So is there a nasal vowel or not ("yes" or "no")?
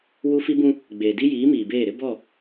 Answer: yes